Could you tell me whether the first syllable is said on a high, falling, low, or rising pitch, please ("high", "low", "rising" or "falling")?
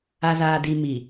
low